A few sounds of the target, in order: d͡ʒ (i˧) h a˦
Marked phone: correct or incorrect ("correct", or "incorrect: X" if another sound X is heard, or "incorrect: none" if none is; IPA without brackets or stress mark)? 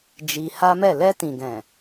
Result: correct